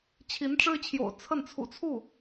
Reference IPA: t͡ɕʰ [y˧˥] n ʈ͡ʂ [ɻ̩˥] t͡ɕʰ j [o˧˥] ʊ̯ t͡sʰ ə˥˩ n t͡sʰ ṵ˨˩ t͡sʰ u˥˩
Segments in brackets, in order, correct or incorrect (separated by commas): incorrect, correct, incorrect